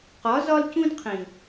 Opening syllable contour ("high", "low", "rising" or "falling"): rising